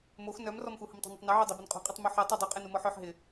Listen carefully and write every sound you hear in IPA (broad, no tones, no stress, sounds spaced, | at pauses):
m o x n œ m r ɔ m x u h ʊ m tˤ o̤ n ɐ tˤ n i ʕ y dˤ e b ʊ n qʼ o̤ qʼ e tˤ m u ħ ɛ tˤ o dˤ y qʼ e n u m ɔ ħ œ ħ ɦ ɪ